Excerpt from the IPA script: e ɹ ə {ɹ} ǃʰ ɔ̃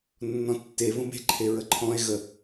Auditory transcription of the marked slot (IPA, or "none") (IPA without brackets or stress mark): none